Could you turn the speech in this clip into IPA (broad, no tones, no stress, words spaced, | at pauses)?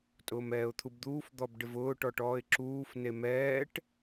tʼʊːmɛːʊ̯t̪ʰubd̪uːf d̪ɔbɖɪvʊː ʈɔʈɔːɪ̯ǁuːf nemɛːʈ